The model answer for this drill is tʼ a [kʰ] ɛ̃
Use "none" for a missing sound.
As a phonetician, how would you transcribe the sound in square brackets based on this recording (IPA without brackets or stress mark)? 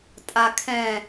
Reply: kʰ